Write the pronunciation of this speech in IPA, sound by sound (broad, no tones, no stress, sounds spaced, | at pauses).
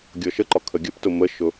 ɡʲ ɔ ʃ ə ǃ ɒ kʰ ə ɡʲ ə p t ʊ m ə ʃ ʊ